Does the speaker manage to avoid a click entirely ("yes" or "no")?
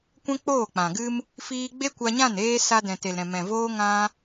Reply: yes